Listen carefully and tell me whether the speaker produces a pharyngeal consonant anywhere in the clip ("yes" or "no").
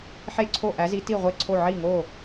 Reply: yes